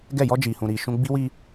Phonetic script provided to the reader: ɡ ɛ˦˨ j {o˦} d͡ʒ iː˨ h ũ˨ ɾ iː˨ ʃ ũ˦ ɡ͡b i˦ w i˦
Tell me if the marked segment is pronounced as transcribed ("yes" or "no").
no